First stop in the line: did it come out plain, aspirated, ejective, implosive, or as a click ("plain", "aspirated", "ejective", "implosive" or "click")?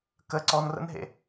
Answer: plain